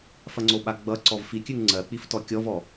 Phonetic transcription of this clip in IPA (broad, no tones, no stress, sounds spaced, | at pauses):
f ɐ ŋ͡ǀ o ɓ a ɡ͡b ʌ ǀ ɔ v f i kʲ ʉ ŋ ŋ͡ǀ ɜ k͡p i f t ɔ kʲ ɔ v ɔ